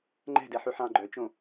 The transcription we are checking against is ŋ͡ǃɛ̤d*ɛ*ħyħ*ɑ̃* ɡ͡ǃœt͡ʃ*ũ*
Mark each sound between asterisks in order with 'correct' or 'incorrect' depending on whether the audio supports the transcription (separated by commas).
correct, correct, incorrect